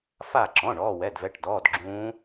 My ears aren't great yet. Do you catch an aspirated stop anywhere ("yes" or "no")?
no